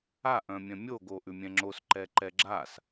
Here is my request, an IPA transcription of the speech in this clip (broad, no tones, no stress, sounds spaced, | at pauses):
a ʔ œ̃ mʲ œ̃ mʲ o ɡ o ʔ ʉ mʲ ɛ̃ ŋ͡ǁ o s ǃ ɛ ǃ ɛ ɡ͡ǁ a s